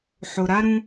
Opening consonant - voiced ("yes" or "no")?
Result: no